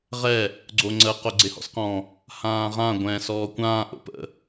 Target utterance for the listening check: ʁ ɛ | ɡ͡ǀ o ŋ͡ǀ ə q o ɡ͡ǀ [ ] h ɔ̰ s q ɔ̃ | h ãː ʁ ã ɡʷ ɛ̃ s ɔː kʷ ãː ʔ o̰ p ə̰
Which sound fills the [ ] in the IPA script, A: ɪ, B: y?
A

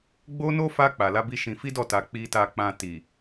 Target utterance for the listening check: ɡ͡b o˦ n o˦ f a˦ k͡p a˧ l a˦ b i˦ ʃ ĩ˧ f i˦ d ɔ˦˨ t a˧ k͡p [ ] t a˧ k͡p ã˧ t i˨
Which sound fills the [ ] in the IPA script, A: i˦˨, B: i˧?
B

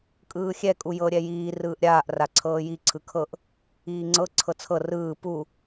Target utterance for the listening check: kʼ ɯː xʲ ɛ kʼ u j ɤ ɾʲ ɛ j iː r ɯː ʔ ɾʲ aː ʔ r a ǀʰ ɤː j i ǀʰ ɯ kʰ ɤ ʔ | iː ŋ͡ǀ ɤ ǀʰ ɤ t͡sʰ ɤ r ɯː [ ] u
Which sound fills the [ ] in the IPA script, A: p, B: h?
A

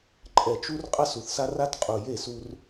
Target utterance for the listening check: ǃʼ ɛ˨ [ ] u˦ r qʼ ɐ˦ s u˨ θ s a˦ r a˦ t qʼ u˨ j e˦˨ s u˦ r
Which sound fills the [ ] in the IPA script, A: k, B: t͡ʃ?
B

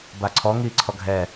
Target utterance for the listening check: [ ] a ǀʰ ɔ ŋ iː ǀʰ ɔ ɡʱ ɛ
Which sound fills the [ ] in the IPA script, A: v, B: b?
B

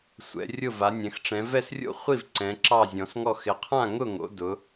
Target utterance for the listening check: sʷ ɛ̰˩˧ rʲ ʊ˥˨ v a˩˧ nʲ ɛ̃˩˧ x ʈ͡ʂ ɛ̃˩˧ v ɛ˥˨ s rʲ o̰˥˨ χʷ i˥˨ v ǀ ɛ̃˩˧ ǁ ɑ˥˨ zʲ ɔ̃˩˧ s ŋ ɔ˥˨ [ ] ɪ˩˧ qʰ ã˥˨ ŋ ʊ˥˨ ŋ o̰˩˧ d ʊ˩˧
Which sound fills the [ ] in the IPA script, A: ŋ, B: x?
B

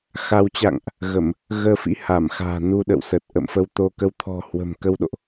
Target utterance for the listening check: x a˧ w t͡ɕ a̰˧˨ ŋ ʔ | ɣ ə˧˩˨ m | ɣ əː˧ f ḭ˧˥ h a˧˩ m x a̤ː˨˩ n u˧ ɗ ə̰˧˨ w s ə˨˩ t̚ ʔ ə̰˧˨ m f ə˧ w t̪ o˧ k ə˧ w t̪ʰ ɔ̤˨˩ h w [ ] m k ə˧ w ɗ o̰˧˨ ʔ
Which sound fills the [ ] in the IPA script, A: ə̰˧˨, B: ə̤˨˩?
B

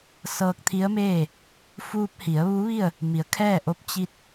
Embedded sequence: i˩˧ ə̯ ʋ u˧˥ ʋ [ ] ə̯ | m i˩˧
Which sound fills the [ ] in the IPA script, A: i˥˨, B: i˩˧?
A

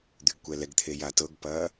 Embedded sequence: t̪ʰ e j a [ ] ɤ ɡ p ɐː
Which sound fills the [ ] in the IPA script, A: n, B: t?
B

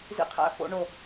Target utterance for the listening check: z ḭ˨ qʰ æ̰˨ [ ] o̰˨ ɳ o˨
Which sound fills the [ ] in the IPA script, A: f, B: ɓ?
A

